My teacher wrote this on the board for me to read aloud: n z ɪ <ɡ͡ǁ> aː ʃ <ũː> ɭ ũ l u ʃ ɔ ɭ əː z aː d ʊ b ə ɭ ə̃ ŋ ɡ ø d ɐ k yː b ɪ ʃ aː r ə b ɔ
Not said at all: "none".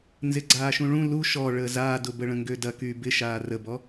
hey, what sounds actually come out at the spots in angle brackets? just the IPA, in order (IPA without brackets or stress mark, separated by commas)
ɡ͡ǀ, ũ